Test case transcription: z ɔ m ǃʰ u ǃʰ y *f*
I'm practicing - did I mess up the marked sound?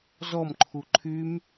yes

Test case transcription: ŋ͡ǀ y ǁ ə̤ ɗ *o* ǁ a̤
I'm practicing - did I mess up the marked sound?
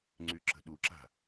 yes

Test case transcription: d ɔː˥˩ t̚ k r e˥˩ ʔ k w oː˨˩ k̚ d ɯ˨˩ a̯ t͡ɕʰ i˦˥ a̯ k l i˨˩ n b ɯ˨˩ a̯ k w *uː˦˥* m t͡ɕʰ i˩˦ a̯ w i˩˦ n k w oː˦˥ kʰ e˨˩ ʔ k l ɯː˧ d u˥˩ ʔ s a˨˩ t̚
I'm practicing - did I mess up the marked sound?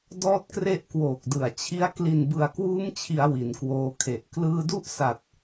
no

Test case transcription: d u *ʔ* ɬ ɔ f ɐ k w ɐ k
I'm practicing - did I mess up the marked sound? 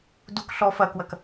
yes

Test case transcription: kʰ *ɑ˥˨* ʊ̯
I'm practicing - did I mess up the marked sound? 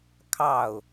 no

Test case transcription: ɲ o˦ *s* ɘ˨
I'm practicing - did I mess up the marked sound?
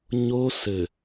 no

